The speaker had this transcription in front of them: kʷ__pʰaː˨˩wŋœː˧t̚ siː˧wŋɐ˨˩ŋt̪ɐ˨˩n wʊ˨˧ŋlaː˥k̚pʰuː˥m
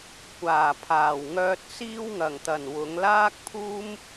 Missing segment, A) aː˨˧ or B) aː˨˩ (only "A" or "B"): B